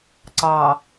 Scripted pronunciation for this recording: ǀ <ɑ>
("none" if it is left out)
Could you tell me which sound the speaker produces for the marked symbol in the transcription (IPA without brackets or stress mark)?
ɑ